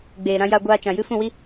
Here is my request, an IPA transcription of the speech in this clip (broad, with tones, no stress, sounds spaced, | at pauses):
ɡ͡b eː˨ ɾ ã˧ j a˧ ɡʷ aː˧ t͡ʃ ã˨ j ɨ˦ f ũ˦˨ w i˦